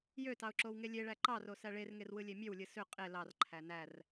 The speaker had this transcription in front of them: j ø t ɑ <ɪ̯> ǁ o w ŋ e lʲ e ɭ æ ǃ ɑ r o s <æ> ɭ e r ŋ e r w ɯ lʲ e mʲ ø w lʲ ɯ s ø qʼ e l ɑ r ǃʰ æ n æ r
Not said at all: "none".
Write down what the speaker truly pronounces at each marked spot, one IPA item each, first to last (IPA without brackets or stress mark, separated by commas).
ʊ̯, æ